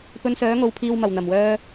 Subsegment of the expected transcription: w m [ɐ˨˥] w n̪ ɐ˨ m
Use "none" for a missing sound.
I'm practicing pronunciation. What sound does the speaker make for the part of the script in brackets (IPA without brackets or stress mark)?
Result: ɐ˨